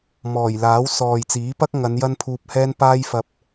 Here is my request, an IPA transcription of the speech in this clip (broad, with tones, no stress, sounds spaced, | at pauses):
m ɔː˨˩ j l aː˨˥ w s ɔː˨ j t͡s iː˨˥ p ɐ˥ k̚ ŋ ɐ˨˧ n j ɐ˥ n pʰ uː˧ p̚ h ɛː˥ n p aː˥ j f ɐ˧ p̚